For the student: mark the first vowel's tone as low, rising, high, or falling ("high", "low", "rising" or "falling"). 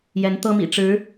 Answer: rising